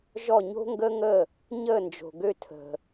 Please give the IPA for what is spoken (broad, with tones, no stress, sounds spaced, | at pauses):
ʒ ɔ˦˨ ɲ o̤˦ ŋ ɡ əː˦ ŋ əː˦˨ | ɲ əː˦˨ n d͡ʒ o̤˨ ɡ ø˦ tʰ ə̤˨